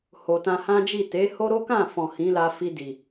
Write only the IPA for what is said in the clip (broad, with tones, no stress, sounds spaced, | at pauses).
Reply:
h o˨ t ã˧ h ã˦ d͡ʒ i˦˨ t e˨˦ h o˦ ɾ o˦ k ã˦˨ f ɔ̃˨ h ĩ˨˦ l a˧ f i˧ d i˨